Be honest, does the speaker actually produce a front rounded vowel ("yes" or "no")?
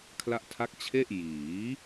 no